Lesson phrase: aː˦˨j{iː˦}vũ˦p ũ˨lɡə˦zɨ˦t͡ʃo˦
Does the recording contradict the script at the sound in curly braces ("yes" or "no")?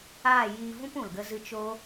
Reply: yes